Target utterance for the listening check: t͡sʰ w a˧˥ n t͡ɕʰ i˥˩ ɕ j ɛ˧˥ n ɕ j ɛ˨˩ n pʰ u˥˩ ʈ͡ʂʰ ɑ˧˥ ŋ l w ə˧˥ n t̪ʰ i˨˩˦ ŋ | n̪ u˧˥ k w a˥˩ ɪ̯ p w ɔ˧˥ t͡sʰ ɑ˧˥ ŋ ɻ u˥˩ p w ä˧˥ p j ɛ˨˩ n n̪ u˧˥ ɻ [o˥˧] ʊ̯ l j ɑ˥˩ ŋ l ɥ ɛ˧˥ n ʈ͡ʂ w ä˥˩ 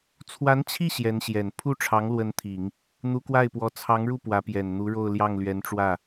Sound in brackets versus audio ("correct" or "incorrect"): correct